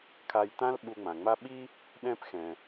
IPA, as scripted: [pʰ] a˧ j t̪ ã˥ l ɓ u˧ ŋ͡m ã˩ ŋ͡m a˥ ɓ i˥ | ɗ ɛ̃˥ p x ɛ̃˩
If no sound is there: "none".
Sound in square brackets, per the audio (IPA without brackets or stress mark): kʰ